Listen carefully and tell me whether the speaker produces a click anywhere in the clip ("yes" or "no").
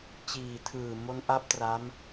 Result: no